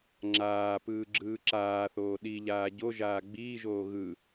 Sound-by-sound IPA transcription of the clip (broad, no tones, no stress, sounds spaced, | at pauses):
ŋ͡ǁ aː p ɯː ɡ͡ǁ ɯː ǁ aː θ oː ɗ i ʎ aː ɟ o ʒ aː ɡ͡b iː ʒ oː ɣ ɯ